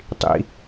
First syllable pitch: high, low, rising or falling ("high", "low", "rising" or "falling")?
high